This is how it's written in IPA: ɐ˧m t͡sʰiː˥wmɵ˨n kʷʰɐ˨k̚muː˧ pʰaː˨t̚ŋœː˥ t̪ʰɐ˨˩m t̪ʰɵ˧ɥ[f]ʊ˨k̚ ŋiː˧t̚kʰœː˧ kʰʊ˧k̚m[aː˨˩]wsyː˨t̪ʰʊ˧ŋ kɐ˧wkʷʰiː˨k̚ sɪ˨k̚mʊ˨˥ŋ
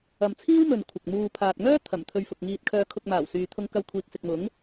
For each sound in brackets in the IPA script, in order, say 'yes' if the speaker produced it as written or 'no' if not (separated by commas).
yes, yes